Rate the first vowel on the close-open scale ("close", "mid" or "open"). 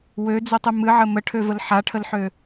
mid